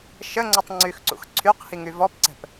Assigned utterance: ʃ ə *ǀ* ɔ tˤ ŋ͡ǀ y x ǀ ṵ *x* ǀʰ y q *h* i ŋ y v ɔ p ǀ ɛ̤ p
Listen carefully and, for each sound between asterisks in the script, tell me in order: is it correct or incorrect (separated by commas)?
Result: incorrect, correct, correct